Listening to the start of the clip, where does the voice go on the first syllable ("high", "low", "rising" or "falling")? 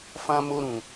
high